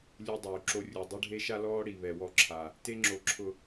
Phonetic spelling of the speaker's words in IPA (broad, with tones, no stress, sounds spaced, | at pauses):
lʲ u˦ dˤ uː˨ ǁ o˦ rʲ u˨ dˤ ʊ˦ ɖʱ e˦ ʃ a˦ l ɔː˦ ɽ i˨ β ɛ˨ w ɔ˦˨ ǁʰ a˨ | t e˦ ŋ͡ǁ o˨ ǁʰ ʊ˨